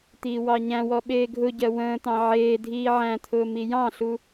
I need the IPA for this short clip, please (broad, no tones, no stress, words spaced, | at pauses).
t̪iːwɑɲæ̃wɔ ɓeːɡʱʊɟɜ wə̃ːt̪ɑ̃ ʕeːdʱiː ʕæ̃t̪ʰʊː mijɑ̃ɬu